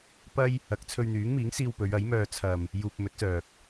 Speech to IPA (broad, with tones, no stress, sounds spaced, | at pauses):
p ɐ˥ j | ɐ˨ k̚ t͡sʰ ɵ˧ ɥ n̪ yː˨˥ ŋ m iː˨˥ ŋ s iː˧ w p ɵ˨˧ ɥ ɐ˨˥ j m œː˧ t͡sʰ ɐ˨ m | j uː˧ p̚ m ɵ˨˥ t̚ s œː˨ k̚